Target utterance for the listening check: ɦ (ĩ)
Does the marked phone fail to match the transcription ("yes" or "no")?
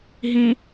no